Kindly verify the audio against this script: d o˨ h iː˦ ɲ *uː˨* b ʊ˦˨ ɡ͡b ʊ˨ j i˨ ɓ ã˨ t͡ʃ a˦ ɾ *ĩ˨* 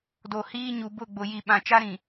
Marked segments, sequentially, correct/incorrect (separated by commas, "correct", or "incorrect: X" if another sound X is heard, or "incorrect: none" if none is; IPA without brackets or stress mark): incorrect: u˨, correct